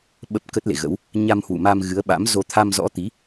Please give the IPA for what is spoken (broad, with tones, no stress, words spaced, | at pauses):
ɓə˦˥p̚kə˦˥t̚lḛ˧˨ɣə̰˧˥w | ɲa˧mhwṵ˧˨ma˧m ɣɨ˨˦ə̯ɓa̰˧˥m zo˧ t̪ʰa˧mzɔ̰˧˥t̪i˨˦